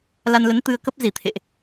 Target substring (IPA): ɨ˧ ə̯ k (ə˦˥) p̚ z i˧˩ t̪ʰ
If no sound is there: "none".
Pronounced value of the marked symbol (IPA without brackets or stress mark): ə˦˥